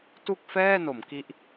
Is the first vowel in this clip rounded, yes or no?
yes